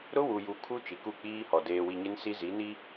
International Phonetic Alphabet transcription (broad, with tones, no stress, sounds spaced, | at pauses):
ɾ ʊ˦ w u˨ j u˨ kʰ u˦ t͡ʃ i˨ k u˦˨ k͡p iː˦ h ɔ˨ d eː˨ w i˨ ɲ e˦ n s i˦ z i˨˦ n i˦